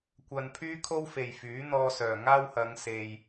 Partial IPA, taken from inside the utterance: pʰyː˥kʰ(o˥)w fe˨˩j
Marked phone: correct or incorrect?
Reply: correct